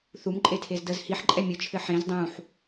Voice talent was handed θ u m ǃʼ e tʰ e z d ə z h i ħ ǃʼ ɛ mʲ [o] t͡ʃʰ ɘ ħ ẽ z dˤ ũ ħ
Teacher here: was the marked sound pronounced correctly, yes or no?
no